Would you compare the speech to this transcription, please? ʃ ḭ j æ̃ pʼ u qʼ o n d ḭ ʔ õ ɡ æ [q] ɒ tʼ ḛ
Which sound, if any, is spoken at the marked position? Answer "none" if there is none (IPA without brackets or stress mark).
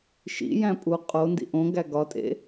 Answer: ɡ